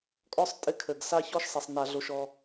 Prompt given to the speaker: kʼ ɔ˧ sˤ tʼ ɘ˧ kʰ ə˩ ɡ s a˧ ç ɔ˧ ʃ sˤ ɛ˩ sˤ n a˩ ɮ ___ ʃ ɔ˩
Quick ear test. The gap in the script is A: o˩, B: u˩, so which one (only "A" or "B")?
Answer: A